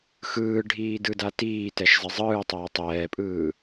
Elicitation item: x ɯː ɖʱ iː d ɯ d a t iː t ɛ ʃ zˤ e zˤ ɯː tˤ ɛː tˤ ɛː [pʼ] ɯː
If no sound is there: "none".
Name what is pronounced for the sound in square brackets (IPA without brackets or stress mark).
pʼ